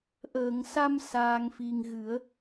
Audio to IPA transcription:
ʔ əː˨˩˨ ŋ s a˧ m s aː˧ ŋ f i˧ ŋ ɣ ɨ˨˩˦ ə̯

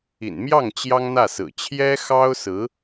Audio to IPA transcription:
ḭ˨˩ n m j ɑ˥˩ ŋ t͡ɕ j ɑ˥ ŋ n̪ ä˥˩ s ɹ̩˨˩ t͡ɕʰ j ɛ˥ x ɑ˥ ʊ̯ s ɹ̩˧˥

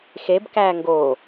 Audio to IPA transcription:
x e b k æː ŋ ɡ oː

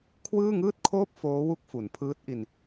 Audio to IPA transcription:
kʰ w ɯː˥˩ ŋ ɯː˥˩ t̚ kʰ oː˥˩ p̚ f oː˦˥ w u˦˥ k̚ f u˩˦ n pʰ ɯː˦˥ t̚ ʔ i˧ n

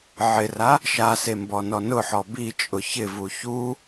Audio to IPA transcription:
ʕ ɪ r a | ʃ a s e m b ɔ n ɔ n ʊ ħ ɔ b i t͡ʃʼ ʊ ç ɪ v u ç u

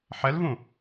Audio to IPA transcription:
ħ ɛ l v ũ

